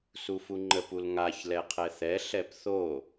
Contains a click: yes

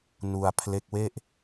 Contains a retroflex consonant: no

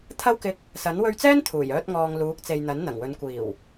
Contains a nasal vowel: no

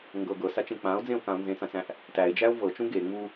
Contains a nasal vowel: yes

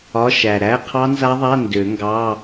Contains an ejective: no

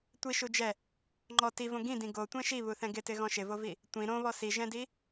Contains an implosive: no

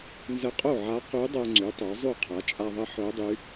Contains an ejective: yes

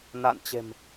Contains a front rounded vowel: no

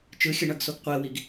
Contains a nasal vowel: no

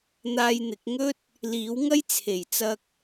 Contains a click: no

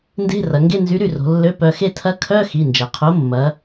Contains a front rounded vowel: yes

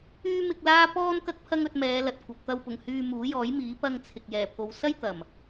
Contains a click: no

